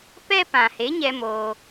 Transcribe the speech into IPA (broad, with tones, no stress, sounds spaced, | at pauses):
p ɛ˦ p ã˨ h e˨˦ ɲ ɛ˧ m oː˧